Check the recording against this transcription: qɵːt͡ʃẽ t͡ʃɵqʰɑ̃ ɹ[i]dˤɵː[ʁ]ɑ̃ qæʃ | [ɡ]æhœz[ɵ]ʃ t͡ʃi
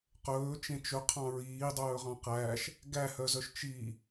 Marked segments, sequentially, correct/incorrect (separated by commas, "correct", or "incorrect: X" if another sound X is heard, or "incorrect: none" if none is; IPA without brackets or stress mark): incorrect: iː, correct, correct, incorrect: œ